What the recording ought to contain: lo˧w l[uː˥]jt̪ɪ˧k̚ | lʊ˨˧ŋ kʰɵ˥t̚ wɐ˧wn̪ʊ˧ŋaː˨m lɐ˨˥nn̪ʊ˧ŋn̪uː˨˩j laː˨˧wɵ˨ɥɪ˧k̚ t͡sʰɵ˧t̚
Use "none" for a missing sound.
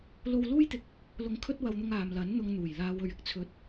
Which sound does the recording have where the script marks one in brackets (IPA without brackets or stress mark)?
uː˥